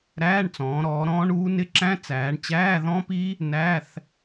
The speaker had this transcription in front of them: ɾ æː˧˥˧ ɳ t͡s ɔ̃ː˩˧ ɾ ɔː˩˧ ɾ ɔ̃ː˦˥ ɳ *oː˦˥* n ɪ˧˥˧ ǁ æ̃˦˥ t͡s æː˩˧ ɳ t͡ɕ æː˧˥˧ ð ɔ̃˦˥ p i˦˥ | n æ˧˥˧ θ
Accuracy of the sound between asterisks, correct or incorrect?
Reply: incorrect